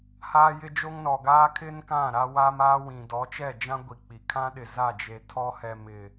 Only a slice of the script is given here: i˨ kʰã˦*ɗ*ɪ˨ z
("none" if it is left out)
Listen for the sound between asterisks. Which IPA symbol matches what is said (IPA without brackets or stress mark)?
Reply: ɗ